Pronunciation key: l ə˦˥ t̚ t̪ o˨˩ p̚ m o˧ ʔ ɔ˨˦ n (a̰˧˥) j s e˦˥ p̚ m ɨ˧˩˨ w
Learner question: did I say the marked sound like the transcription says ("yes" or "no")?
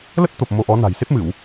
no